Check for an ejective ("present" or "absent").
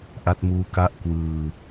absent